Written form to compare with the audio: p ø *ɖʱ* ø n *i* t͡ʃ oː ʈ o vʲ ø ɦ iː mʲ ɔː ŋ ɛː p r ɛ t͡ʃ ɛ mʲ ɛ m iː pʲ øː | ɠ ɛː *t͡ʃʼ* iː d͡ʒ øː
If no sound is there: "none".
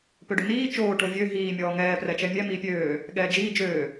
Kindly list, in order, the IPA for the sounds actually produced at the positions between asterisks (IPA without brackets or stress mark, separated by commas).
ɖ, iː, d͡ʒ